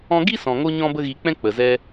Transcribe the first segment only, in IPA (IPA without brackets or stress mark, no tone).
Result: ɔ̃